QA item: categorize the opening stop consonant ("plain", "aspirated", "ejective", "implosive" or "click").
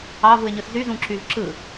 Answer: click